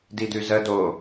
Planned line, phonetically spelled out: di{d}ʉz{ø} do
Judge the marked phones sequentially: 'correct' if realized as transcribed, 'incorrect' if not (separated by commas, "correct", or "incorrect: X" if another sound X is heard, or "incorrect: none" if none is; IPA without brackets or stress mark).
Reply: correct, incorrect: ə